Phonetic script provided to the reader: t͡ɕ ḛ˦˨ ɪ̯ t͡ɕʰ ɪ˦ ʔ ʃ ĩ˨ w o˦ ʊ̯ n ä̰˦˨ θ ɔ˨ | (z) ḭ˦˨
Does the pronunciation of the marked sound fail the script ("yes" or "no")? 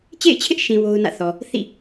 yes